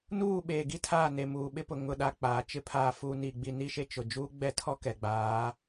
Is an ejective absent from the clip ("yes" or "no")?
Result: yes